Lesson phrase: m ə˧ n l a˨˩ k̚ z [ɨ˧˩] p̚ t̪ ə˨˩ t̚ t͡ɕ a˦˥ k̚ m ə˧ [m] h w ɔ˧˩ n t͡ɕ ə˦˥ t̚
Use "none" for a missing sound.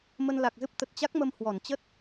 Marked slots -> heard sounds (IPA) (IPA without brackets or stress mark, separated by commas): ɨ˦˥, m